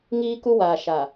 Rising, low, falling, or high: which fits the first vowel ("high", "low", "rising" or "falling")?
high